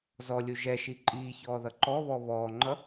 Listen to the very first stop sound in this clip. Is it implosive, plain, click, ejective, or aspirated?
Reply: click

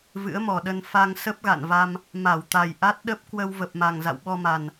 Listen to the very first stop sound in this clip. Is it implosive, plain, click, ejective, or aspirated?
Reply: implosive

